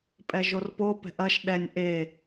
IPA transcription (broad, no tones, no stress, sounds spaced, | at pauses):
pʼ ɛ ʒ o r p o p ɛ̤ ʔ ɐ ʃ ɗ ɛ nʲ ʔ e